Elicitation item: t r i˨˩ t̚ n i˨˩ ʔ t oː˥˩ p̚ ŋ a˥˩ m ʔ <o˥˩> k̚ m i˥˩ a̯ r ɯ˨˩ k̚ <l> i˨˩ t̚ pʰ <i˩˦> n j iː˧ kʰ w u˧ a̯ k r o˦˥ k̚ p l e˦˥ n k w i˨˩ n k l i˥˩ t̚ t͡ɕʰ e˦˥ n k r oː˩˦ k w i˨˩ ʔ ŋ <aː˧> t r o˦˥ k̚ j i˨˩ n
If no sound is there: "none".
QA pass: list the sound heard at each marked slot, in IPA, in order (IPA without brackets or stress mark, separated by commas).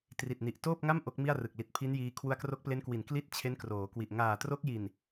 o˦˥, l, i˦˥, aː˨˩